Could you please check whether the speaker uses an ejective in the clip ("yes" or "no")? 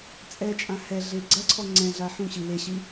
yes